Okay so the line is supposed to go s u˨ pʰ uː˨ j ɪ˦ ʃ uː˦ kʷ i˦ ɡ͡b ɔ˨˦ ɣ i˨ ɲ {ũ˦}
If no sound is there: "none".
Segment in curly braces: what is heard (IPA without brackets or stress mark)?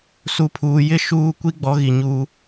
u˦